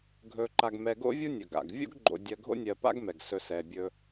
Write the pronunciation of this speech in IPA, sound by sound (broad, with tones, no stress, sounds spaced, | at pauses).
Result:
ɡʱ ɵ˨ ǃ a˨ ɡ m ɛ˨ ɡ o̰˥ vʲ u˥ nʲ ɵ˩ ɡ a̰˩ ɡ vʲ o̰˥ ɡ ɡ͡ǃ o̰˨ dʲ ɜ˨ ɡʱ o̰˦ nʲ ɜ˨ p a̰˦ ɡ m ɛ˩ ɡ s ɵ˨ s ɛ˨ bʲ ɵ˦